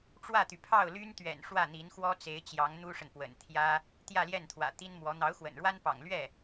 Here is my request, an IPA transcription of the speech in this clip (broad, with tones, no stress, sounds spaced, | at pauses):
ʈ͡ʂ w ä˥˩ t̪ y˩ pʰ ɑ˥˩ ʊ̯ l y˥ n t̪ ɥ ɛ̰˨˩ n ʂ w ä˥˩ n̪ i˧˥ n x w ɔ˥ t͡s e˧˥ ɪ̯ t͡ɕ j ɑ˧˥ ŋ n̪ u˥ ʂ ə˨ n p w ə̰˨˩ n t̪ʰ j ä˥ | t̪ j ä˥˧ l j ɛ˥˩ n t̪ʰ w ä̰˨˩ t̪ i˥ n m w ɔ˧˥ n̪ ɑ˧˥ ʊ̯ x w ə̰˨˩ n ɻ w a˥ n p ɑ̰˨˩ ŋ l ɥ ɛ˥˩